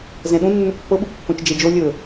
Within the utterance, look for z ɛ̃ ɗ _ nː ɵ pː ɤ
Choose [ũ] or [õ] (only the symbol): ũ